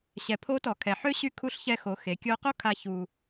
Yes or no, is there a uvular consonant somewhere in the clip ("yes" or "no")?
yes